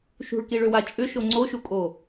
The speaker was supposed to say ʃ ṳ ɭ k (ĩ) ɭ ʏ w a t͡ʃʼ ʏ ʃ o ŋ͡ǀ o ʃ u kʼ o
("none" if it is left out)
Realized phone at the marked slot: i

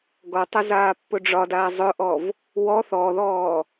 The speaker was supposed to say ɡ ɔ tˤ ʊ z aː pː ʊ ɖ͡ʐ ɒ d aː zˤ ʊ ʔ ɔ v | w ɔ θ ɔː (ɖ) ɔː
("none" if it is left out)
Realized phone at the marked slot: ð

